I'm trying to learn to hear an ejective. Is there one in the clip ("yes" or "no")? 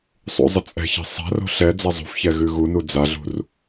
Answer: yes